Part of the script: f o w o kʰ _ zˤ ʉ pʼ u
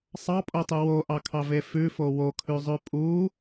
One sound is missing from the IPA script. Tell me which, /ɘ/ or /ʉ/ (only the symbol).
ʉ